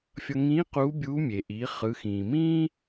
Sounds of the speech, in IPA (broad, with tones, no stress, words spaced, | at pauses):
fʲʌ˧ ŋĩː˧˥ quː˧˥bʲuː˧˥ mʲe˩ʔiː˩˧ χɯ˩˧xĩː˩ mĩː˥